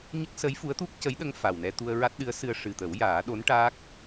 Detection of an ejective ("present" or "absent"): absent